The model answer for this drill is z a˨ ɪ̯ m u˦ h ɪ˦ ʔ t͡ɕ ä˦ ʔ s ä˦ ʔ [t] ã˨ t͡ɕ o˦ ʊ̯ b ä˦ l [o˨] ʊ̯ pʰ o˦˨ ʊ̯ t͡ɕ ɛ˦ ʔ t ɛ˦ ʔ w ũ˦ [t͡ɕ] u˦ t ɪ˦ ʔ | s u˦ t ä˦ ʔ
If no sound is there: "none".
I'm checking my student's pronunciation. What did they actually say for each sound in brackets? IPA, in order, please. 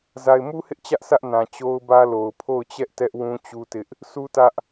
n, o˨, t͡ɕ

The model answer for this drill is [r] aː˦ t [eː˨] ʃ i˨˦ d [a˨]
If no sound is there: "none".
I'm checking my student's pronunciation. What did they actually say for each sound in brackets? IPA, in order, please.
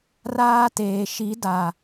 r, eː˨, a˨

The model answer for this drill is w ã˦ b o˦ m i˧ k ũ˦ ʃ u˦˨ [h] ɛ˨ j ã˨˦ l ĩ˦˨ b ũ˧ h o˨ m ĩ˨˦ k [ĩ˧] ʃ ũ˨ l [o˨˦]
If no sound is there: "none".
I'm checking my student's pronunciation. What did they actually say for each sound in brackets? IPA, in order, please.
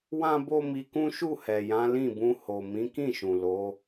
h, ĩ˦˨, o˨˦

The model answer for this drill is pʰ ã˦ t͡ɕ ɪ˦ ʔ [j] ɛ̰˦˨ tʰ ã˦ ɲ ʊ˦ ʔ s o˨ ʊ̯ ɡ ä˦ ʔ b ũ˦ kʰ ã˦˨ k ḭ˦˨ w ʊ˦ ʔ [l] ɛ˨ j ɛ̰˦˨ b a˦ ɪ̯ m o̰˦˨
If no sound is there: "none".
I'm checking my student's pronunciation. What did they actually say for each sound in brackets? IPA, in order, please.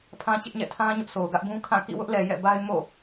ɲ, l

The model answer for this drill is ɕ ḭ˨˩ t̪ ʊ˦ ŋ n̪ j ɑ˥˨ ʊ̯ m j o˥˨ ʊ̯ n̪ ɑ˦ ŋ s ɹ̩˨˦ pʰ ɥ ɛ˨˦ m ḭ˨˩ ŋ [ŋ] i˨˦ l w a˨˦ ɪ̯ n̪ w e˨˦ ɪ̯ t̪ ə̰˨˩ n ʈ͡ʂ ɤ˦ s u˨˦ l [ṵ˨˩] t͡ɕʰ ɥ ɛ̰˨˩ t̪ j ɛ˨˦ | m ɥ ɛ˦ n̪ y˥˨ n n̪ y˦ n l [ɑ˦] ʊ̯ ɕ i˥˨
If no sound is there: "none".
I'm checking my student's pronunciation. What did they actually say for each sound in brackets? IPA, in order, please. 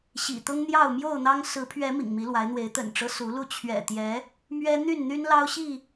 m, u˥˨, ɑ˦

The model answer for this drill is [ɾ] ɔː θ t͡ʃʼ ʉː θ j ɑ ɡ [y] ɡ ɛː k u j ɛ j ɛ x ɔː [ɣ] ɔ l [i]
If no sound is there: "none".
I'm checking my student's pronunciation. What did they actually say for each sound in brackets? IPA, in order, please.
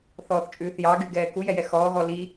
θ, y, ɣ, i

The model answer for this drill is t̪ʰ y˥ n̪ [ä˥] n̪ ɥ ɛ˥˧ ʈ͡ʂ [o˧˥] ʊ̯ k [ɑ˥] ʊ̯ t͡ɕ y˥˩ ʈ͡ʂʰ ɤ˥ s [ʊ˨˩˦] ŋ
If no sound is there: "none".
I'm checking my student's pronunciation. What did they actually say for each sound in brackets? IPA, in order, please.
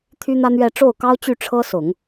ä˥, o˥˩, ɑ˥, ʊ˨˩˦

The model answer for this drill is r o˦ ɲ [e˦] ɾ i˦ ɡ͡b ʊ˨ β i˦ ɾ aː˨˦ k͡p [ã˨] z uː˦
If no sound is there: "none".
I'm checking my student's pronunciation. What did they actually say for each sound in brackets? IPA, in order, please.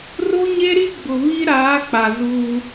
e˦, a˨

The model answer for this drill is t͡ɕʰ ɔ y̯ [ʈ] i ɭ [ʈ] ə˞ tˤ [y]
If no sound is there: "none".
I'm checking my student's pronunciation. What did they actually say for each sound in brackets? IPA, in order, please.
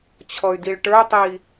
d, ʈ, i

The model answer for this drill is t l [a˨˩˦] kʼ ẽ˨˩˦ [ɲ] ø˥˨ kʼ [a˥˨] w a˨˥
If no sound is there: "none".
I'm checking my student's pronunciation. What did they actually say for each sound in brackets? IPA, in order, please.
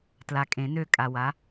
a˨, n, a˨

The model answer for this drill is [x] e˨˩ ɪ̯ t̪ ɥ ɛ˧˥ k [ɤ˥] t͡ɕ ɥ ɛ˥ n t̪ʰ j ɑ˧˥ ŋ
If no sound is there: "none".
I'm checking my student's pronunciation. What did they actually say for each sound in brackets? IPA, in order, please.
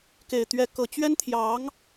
k, ɤ˨˩

